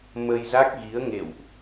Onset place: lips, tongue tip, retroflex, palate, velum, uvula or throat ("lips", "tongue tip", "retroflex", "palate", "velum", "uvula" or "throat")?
lips